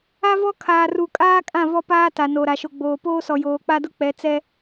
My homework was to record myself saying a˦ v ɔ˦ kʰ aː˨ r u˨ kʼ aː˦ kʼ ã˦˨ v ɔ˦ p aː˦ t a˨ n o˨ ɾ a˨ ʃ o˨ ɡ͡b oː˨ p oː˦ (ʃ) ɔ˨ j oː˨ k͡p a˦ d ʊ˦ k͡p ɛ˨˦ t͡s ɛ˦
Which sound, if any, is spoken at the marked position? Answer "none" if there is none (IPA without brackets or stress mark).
s